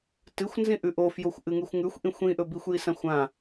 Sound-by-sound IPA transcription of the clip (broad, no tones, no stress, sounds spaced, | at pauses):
t ɨ xʷ n z ĩ ʔ ʉ ʔ o f j o xʷ ʔ ɨ ŋ ʉ xʷ ŋ ʉ xʷ ʔ ĩ xʷ ĩ ʔ ɵ b i xʷ j i s ã xʷ ã